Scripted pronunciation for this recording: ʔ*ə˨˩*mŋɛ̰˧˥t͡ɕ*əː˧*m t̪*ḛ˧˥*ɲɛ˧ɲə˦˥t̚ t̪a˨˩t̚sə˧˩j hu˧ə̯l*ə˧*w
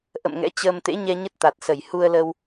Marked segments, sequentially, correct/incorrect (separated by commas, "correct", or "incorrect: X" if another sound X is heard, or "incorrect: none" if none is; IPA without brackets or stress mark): incorrect: ə̰˧˨, correct, correct, correct